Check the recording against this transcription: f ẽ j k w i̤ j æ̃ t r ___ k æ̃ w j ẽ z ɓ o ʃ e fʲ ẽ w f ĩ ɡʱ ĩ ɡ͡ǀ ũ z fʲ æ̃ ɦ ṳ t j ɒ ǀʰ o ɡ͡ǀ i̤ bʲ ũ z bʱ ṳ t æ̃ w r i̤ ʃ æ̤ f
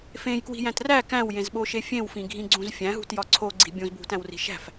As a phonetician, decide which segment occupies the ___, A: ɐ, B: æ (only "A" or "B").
B